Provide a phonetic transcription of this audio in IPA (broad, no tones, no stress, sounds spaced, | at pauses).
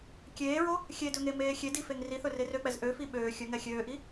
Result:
kʲ eː ɹ o | xʲ e d ɵ ŋ e m eː xʲ e d i f e ŋ r i θ ɵ r e r ø k͡p ɛ z ʔ ø f i ɓ øː xʲ ɵ ŋ ɛ xʲ øː ʔ i